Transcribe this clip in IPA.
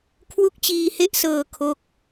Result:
kʰ w u˦˥ k̚ t͡ɕ iː˧ h e˦˥ ʔ s ɤː˧ kʰ o˥˩ k̚

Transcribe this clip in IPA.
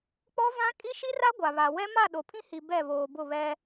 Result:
k͡p ɔ˦ v ã˦ kʼ i˦ ʃ i˦ r a˦ ɡʷ a˨ β a˨ w ɛ˦ m a˦˨ ɗ o˨ pʰ ĩ˦ h i˨ b ɛ˦˨ β oː˨ b ʊ˦˨ β ɛ˦

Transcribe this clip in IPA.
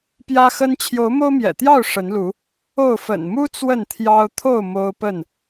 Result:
p j ä˦ x ə˦ n t͡ɕʰ j o˨˦ ʊ̯ m o˦ ʊ̯ m j ɛ̰˨˩ t̪ j ɑ˥˨ ʊ̯ ʂ ə˨˦ n l u˨˦ | o˥˨ ʊ̯ f ə̰˨˩ n m u˦ t͡s w ə˥˨ n t̪ʰ j ɑ˦ ʊ̯ t̪ʰ o˥˨ ʊ̯ m o˦ ʊ̯ p ə˥˨ n

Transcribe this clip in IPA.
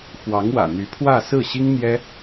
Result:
x w ɑ˧˥ ŋ w ä̰˨˩ n̪ y˧˥ pʰ w ä˥˧ s ɹ̩˥˩ ɕ i˥ ŋ n̪ j ɛ˥

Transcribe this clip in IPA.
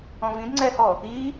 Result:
ɔ̃ v ĩ d ŋ͡ǀ ɛ h ɔ | i

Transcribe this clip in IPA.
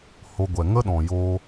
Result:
h o˧ ɡʷ ɛ˨ ŋ ə˦ ɗ ɔ̃˨ j o˧

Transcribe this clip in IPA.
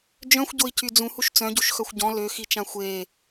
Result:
d͡ʒ œ̃ xʷ ɟ o i̯ c y d͡z ũ h u ʃ t͡s œ̃ ɟ u ʃ x œ xʷ ɟ ɔ̃ l ø x i t͡ʃ ã xʷ e

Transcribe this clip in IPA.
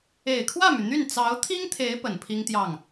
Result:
e˨˩ ɪ̯ kʰ w ä˥˩ m y˩ n̪ y˥˩ n t͡s ɑ˧˥ ʊ̯ t̪ʰ i˥ ŋ t̪ʰ e˧˥ ɪ̯ p ə˨˩ n pʰ i˥ ŋ t̪ j ɑ˥˩ ŋ

